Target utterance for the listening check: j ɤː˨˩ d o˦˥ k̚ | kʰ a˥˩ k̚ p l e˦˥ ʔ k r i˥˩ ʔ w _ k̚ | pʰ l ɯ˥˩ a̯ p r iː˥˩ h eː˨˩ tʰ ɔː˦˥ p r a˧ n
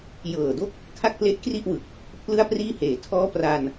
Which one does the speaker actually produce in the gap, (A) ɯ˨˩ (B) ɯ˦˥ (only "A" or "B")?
A